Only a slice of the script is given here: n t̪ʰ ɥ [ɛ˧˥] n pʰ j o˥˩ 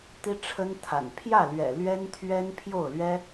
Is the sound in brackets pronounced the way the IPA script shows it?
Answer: no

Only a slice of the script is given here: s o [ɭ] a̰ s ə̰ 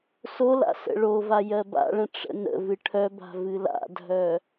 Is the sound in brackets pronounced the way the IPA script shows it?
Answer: no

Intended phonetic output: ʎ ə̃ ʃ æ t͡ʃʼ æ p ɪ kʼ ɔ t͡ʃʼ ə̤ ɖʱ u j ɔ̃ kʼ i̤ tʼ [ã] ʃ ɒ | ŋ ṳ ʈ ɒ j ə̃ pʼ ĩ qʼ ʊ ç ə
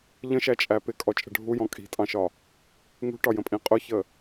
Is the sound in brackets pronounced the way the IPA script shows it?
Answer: no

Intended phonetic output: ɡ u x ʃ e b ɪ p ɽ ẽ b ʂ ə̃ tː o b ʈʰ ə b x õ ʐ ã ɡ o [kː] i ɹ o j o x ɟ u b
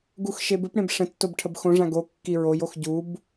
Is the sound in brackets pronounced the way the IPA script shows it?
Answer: yes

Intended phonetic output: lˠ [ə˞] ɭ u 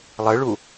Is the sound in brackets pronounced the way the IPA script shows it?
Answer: no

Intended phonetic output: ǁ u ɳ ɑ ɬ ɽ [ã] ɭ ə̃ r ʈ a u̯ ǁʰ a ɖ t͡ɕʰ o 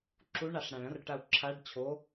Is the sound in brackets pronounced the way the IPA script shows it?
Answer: yes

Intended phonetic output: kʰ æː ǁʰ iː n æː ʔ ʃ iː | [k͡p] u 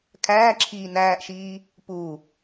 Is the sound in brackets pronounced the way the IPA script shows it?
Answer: no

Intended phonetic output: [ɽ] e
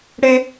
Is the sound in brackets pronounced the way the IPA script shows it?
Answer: yes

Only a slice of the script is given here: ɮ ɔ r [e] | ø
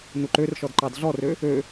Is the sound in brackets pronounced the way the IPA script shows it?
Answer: no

